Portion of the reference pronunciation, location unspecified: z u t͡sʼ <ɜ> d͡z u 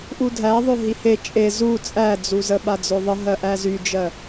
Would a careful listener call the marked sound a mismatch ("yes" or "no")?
yes